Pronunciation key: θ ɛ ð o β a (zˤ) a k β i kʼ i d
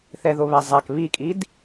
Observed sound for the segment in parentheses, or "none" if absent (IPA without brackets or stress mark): zˤ